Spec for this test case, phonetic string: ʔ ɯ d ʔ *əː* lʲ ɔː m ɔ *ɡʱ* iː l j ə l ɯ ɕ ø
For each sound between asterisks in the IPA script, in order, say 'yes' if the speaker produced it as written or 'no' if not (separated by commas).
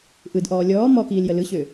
no, no